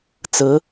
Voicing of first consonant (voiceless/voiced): voiceless